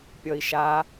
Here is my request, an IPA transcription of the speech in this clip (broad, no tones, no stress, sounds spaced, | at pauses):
pʲ ɔ i̯ ʃ a